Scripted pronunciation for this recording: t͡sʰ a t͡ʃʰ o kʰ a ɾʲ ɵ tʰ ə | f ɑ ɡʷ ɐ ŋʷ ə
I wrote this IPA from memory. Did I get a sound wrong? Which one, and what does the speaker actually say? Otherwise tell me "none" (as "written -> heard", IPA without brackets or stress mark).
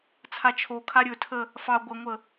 none